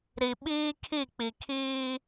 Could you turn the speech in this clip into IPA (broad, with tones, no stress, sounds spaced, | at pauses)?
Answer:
ɾ i˨ ɓ iː˦ kʰ i˦˨ k͡p i˨ kʰ iː˦